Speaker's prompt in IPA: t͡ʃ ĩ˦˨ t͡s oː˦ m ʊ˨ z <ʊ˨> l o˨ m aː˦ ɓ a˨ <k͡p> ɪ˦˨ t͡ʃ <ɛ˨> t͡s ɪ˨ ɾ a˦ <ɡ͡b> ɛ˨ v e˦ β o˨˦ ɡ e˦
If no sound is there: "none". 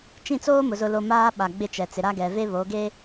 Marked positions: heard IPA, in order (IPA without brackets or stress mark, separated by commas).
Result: ʊ˨, ɡ͡b, ɛ˨, ɡ